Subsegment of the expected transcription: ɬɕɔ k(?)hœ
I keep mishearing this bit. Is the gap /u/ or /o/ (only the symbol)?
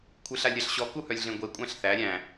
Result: u